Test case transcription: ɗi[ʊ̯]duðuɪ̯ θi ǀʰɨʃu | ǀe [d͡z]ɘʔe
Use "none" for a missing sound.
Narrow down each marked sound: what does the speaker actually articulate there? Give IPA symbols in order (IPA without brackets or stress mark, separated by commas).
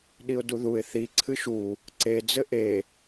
ʊ̯, d͡z